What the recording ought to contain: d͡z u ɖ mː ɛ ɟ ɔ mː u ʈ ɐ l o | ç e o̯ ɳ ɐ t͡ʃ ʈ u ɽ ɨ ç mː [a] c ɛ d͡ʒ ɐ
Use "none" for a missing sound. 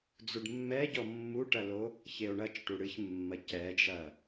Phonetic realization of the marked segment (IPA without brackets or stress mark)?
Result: ɐ